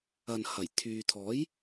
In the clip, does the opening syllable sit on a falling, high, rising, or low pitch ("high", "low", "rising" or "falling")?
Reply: low